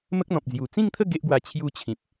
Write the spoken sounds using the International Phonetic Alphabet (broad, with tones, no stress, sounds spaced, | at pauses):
m ə˦ k̚ n̪ ɔ̃˨ p̚ d͡z j u˨˩ t͡s ĩ˥˧ ŋ t̪ʰ ə˥˧ ɡ e˦ ʔ ɡ w a˧ t͡ɕʰ j u˧ t͡ɕʰ ĩ˨ p̚